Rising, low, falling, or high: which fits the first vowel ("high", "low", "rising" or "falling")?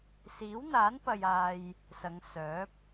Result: rising